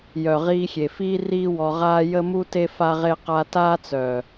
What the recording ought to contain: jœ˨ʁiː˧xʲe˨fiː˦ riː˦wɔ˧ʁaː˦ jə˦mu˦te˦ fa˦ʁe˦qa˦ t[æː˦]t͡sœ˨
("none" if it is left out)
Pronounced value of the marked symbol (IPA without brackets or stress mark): aː˦